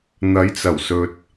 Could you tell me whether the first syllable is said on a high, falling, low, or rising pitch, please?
rising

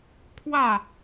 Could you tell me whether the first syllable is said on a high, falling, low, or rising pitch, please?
falling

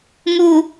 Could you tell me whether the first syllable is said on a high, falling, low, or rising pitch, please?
low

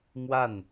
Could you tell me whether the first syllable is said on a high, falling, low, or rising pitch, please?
falling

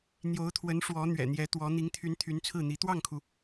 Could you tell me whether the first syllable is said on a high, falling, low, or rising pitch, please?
rising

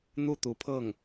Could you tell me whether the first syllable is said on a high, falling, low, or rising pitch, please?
falling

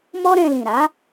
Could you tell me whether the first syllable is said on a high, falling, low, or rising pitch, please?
high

